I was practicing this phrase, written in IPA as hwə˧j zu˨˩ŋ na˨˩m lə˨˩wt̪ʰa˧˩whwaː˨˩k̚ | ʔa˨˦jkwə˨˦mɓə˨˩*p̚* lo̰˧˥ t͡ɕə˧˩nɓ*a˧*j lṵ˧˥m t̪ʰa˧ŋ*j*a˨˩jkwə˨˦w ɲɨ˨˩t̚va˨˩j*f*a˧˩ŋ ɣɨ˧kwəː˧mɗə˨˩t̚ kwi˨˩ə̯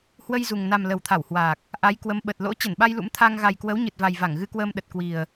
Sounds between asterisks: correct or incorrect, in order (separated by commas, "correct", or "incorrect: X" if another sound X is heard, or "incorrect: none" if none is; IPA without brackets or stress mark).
incorrect: t̚, correct, incorrect: ɣ, incorrect: v